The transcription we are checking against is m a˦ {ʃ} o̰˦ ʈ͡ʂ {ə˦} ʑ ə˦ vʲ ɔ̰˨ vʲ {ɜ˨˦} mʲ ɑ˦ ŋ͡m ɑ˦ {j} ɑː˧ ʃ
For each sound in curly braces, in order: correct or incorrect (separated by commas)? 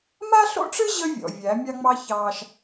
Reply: incorrect, incorrect, incorrect, incorrect